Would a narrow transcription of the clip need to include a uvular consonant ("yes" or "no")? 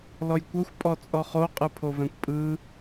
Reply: yes